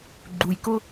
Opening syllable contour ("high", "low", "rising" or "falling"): low